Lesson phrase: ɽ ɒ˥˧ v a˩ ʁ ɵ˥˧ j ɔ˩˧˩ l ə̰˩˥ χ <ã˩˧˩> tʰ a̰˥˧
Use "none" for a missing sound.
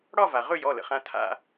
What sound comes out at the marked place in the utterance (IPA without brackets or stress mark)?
ã˩˧˩